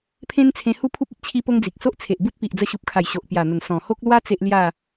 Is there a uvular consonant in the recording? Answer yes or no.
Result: no